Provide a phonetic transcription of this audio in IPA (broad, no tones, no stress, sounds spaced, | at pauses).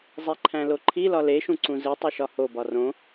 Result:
zˤ e ǃʰ æ̃ l o ǃʰ i l ɒ l e ʃ ũ ǀ ũ z i tˤ i ʃ ɒ h o b ɒ r õ